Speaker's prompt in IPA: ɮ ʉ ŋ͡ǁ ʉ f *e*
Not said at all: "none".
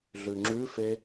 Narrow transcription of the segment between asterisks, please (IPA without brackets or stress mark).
e